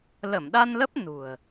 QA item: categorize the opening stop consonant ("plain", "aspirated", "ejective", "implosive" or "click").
implosive